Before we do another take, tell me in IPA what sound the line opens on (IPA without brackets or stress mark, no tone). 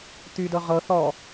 t̪